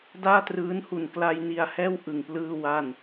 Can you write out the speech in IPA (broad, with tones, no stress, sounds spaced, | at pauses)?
d aː˥˩ t r ɯː˦˥ n h u˨˩ n k l a˧ j n i˧ a̯ h ɛː˥˩ w ʔ ɯ˨˩ ŋ p l ɯː˥˩ w a˥˩ n